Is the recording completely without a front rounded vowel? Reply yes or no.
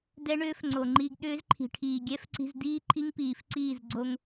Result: no